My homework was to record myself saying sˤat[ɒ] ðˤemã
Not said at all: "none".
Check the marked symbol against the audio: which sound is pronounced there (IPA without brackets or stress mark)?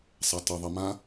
ʌ